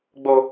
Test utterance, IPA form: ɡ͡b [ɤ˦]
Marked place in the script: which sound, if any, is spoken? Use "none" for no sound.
o˦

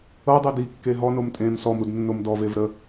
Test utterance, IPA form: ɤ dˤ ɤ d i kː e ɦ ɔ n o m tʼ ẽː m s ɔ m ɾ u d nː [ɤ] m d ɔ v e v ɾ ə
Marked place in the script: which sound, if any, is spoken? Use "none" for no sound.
o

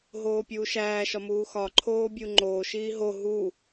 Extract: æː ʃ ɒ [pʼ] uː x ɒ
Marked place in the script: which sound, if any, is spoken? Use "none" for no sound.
m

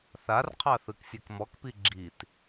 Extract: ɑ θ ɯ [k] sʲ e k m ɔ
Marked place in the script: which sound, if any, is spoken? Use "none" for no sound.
k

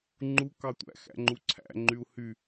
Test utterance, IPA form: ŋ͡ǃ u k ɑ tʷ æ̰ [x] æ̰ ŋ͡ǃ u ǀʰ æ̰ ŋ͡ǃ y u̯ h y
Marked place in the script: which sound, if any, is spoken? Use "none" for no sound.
x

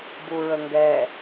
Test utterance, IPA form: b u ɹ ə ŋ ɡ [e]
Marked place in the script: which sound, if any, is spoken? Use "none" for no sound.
ɛ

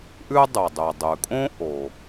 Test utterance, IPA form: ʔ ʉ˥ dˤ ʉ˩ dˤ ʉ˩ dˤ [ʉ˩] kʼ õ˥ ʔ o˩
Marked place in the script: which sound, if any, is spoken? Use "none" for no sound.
ʉ˩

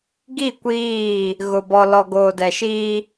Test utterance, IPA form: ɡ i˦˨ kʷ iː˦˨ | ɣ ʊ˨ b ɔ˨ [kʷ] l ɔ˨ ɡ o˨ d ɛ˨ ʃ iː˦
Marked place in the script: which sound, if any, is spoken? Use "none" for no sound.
none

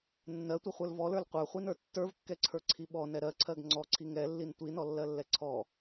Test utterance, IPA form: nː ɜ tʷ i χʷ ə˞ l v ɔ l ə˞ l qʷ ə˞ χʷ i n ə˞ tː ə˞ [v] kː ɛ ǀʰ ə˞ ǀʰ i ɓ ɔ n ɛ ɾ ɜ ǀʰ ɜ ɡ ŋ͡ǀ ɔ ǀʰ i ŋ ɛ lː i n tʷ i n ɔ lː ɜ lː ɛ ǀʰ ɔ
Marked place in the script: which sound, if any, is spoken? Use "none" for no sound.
v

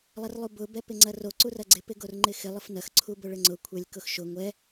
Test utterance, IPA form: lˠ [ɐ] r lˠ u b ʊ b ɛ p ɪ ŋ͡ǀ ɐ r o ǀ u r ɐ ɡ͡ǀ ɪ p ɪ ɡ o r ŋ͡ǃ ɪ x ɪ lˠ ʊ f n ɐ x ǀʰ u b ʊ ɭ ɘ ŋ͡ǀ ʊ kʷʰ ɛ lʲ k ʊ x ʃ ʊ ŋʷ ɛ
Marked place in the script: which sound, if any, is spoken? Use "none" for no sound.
ɐ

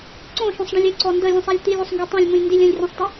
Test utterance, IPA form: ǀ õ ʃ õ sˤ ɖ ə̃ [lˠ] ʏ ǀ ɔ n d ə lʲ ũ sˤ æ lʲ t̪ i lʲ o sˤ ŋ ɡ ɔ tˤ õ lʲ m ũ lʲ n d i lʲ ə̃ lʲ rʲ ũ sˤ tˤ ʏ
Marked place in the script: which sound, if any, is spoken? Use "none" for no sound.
lʲ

